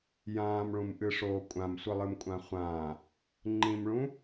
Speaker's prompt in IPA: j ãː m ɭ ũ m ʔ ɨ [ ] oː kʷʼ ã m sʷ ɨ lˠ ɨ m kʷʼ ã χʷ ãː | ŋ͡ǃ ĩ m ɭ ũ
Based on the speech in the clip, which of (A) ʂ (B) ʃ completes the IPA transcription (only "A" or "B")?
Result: A